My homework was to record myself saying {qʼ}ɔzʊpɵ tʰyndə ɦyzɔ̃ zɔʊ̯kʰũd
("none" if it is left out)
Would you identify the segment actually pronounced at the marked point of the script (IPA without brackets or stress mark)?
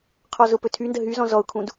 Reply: qʰ